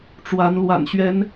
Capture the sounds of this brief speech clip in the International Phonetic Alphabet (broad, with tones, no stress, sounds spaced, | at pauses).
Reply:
ʈ͡ʂ w a˨˦ n l w a̰˨˩ n ɕ ɥ ɛ˨˦ n